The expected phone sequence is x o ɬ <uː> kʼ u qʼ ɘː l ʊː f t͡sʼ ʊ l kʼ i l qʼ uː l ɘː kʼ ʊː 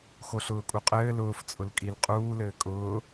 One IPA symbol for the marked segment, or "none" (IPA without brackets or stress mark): ʊː